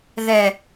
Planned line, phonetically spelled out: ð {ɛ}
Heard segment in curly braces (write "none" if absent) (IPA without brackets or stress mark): ɛ